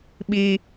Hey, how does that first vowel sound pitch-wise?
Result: low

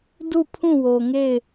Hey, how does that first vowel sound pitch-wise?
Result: falling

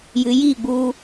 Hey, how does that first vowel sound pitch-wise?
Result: low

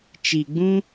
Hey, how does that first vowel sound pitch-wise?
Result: low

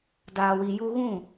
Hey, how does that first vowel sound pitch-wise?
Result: low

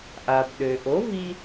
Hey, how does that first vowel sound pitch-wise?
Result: low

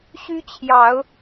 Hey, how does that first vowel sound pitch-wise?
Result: high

